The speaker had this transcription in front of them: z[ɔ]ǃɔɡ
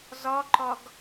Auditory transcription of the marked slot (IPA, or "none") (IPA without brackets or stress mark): ɔ